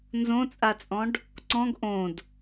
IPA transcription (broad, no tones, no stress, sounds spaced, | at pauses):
n z õ t͡sʼ a t͡sʼ ɔ̃ ɖ | ǀ ɔ̃ ɡ ʔ õ d